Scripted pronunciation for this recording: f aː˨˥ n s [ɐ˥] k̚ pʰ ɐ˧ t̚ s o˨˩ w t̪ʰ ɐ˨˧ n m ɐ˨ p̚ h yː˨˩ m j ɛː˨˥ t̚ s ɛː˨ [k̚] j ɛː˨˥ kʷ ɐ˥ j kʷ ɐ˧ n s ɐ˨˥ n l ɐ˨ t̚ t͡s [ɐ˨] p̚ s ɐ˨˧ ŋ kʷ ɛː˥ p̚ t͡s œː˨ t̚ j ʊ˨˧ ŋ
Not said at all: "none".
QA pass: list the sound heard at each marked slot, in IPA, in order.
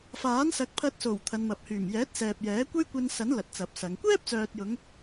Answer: ɐ˨˥, p̚, ɐ˨

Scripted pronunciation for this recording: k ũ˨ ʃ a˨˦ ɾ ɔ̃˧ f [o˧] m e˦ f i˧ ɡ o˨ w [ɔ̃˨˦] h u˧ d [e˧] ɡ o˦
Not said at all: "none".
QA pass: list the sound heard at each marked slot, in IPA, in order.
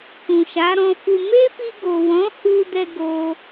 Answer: u˧, ɔ̃˨˦, ɛ˧

